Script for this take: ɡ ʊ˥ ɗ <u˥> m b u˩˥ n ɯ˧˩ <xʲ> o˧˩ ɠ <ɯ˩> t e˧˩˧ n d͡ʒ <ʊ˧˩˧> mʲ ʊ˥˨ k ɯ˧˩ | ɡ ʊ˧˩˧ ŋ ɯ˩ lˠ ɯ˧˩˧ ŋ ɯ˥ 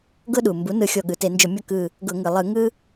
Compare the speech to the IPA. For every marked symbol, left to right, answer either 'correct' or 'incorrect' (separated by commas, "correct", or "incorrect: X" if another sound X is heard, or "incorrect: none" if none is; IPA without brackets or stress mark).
incorrect: u˩, correct, correct, correct